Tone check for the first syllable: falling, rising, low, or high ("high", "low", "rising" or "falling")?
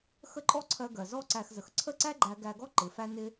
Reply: high